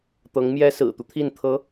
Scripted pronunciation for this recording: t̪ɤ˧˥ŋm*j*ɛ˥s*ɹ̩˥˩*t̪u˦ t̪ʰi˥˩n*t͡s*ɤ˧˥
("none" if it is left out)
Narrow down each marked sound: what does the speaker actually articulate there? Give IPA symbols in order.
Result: j, ɹ̩˨˩, t̪ʰ

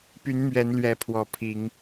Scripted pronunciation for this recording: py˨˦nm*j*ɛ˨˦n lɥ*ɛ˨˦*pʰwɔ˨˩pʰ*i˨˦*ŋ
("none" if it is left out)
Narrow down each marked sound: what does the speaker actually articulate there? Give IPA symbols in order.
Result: ɥ, ɛ˨˦, i˨˦

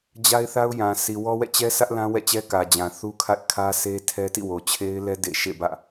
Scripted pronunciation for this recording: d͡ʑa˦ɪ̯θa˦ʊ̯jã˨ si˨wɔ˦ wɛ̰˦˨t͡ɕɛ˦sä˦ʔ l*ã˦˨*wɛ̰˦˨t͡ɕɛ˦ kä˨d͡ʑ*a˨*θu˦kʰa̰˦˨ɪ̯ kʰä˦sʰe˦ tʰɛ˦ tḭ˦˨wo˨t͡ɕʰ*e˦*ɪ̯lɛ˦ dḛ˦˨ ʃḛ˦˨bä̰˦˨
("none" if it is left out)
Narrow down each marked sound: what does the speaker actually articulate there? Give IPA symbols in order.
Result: ã˦, ã˨, e˦

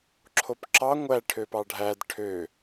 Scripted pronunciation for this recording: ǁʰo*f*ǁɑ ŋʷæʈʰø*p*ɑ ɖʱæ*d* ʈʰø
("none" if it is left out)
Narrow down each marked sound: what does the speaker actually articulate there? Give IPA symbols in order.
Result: p, p, d

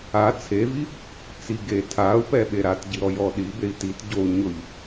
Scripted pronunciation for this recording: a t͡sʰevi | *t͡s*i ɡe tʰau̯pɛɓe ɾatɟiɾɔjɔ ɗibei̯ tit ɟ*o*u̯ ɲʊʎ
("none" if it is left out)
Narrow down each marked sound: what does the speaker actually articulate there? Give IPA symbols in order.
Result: t͡s, o

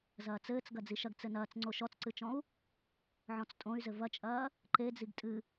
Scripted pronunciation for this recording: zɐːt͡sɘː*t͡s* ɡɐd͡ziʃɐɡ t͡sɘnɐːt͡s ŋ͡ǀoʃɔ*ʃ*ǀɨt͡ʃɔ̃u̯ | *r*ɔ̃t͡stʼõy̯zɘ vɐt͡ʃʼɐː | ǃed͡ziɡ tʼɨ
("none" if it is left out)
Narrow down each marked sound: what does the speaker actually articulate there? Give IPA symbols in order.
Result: t͡s, t͡s, ʕ

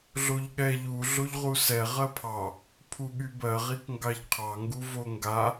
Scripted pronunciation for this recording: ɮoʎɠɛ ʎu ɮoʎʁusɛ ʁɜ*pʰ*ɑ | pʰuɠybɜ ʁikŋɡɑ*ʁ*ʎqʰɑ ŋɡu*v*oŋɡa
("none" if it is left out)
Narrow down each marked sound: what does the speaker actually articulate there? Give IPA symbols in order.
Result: pʰ, none, v

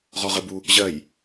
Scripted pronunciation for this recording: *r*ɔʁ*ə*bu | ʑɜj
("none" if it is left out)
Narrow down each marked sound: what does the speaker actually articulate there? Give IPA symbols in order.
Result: ʁ, ə

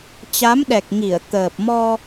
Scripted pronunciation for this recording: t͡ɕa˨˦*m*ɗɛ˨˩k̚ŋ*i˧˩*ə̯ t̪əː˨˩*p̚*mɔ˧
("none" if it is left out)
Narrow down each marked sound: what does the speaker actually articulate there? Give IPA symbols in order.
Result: m, i˧˩, p̚

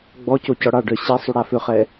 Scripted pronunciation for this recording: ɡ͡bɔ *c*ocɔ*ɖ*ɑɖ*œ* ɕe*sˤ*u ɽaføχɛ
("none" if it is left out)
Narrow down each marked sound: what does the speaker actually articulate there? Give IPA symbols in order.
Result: c, ɽ, œ, sˤ

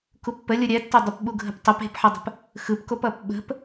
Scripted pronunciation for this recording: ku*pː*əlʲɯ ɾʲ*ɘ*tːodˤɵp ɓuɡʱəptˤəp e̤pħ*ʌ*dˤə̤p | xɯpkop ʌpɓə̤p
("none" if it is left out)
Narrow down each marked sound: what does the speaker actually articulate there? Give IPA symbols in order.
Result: pː, ɛ, ʌ

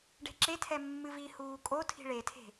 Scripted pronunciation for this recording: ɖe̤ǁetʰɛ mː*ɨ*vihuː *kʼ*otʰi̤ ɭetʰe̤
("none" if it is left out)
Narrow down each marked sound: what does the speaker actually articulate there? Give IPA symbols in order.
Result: ɨ, kʼ

